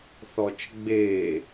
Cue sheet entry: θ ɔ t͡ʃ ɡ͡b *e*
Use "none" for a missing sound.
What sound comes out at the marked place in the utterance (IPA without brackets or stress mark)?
e